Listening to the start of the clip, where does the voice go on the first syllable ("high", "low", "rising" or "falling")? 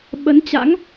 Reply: rising